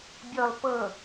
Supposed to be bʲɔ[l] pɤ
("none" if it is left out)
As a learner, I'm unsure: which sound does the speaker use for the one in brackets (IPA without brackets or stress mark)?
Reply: l